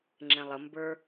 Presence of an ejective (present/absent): absent